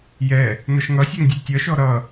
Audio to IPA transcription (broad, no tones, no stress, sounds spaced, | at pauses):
j ɛ | n ʌ ʃ ŋ ʌ sʲ ɛ ŋ dʲ ɛ tʲ ʌ ʃ ɔ ɾ ʌ